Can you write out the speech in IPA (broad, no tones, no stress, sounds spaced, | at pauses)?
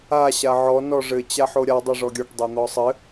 a ɕ a ʕ ɔ n ɔ ʐ ɘ t͡ɕ a ħ o ɾʲ a dˤ o ʐ ɔ ɡʲ ɔ ʈ dˤ o n̪ ɔ sˤ ɘ